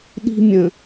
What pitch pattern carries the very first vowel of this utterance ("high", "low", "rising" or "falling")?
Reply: high